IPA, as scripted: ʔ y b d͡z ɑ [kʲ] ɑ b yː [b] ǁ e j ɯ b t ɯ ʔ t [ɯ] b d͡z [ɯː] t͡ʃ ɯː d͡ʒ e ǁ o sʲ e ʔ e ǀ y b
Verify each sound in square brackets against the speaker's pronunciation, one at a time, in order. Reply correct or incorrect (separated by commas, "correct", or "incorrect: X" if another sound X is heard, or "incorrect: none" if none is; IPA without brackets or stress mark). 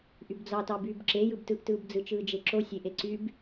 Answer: incorrect: t, correct, incorrect: ɯː, incorrect: ɯ